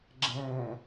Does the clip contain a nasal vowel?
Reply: yes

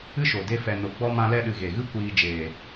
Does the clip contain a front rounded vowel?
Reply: no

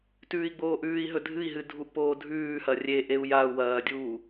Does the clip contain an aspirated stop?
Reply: no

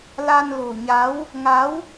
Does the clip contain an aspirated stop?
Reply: no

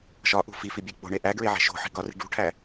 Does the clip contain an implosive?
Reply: no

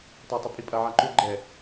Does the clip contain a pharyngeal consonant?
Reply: yes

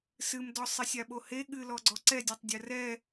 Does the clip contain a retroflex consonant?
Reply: no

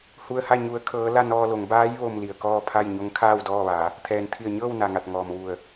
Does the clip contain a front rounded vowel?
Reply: no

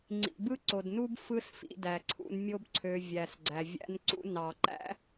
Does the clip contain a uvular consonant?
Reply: no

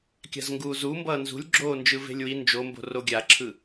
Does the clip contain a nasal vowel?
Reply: no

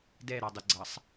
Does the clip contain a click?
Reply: yes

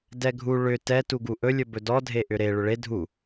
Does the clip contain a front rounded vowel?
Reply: yes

